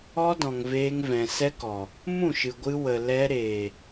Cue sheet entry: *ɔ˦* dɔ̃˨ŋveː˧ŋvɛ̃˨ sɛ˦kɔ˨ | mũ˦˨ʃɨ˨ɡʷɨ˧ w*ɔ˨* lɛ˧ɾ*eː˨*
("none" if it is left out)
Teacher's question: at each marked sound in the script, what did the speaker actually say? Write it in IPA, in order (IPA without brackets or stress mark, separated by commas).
ɔ˦, ə˨, eː˨